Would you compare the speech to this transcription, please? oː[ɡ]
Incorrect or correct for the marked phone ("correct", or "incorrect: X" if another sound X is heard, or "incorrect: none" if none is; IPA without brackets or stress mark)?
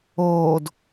incorrect: d